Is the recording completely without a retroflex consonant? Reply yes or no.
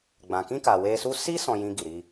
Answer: yes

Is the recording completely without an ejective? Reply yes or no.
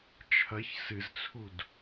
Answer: yes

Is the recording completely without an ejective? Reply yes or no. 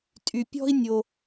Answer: no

